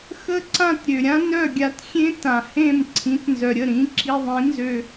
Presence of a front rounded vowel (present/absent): present